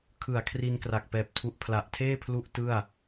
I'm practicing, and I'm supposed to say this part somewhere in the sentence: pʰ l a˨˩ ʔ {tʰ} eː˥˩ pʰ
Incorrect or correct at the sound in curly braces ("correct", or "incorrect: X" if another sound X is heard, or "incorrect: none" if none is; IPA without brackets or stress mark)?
correct